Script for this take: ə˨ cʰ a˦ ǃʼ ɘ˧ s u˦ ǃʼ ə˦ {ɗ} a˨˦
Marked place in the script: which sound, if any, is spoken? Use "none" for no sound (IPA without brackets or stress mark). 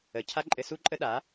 ɗ